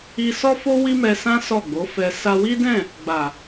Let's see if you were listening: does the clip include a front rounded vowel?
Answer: no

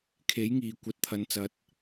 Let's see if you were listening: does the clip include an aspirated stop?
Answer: yes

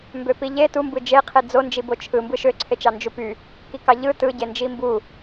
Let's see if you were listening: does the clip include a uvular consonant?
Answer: yes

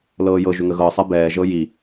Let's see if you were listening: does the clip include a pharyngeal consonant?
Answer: no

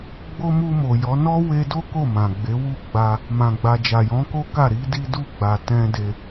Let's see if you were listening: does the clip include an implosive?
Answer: no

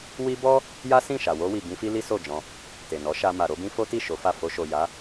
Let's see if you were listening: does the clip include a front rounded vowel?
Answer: no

